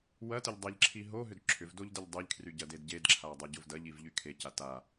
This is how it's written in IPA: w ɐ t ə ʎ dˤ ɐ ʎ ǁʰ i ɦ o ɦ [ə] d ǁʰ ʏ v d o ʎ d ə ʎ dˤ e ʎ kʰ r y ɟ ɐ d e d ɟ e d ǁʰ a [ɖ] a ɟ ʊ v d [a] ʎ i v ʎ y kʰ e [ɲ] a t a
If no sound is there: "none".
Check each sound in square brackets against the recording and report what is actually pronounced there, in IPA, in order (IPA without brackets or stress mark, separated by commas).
ʏ, dˤ, ɐ, c